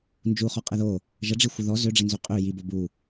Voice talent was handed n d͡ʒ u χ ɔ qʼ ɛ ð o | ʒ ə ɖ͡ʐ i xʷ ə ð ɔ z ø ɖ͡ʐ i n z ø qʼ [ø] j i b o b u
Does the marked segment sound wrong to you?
no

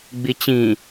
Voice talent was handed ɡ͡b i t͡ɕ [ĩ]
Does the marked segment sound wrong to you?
no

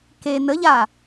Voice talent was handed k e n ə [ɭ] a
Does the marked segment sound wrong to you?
yes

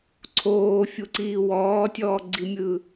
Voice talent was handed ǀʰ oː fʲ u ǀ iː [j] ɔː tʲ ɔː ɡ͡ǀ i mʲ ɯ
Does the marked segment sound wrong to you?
yes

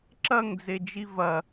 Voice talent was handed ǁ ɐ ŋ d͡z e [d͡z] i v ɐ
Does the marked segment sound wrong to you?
yes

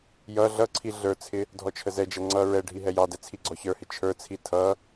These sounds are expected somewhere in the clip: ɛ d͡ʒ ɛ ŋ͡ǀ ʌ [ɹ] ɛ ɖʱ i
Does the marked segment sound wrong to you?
no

